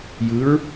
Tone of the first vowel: rising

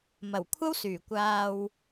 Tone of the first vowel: low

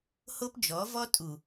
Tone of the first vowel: high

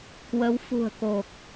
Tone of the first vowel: rising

